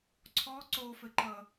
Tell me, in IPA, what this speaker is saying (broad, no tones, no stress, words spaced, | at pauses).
ǀʰɔ ǀofɘǃʌ